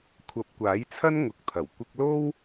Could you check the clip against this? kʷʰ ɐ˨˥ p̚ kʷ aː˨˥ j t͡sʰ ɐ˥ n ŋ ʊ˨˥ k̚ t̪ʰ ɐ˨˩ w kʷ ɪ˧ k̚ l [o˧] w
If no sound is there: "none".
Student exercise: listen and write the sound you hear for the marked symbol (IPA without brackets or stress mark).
o˥